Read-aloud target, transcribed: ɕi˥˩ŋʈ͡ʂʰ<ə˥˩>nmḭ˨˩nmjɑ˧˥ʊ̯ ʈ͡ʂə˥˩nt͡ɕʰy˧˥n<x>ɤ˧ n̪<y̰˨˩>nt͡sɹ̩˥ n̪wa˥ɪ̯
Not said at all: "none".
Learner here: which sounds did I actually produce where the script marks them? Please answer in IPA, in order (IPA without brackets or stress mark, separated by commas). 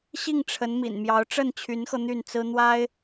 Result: ə˧˥, x, y˥˩